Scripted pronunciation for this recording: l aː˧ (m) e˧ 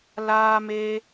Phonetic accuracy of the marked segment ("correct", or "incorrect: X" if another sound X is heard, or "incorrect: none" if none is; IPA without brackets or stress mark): correct